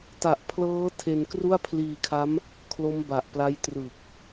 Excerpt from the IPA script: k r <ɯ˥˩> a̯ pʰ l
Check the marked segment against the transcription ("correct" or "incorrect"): incorrect